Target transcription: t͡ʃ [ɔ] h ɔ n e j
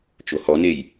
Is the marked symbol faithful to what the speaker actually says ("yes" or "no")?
no